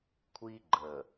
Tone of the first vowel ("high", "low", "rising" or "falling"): high